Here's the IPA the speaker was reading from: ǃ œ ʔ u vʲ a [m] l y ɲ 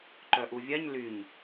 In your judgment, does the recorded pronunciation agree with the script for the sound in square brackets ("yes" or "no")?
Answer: no